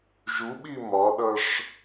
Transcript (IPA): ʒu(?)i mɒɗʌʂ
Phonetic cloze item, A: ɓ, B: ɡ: A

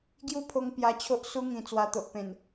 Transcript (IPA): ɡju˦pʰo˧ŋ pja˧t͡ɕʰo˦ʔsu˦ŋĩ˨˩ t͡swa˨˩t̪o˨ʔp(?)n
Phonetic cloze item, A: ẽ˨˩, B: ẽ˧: A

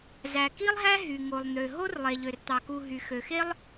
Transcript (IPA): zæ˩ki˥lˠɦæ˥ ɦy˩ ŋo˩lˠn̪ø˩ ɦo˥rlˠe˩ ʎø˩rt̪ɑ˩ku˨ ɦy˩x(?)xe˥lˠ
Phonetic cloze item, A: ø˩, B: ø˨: A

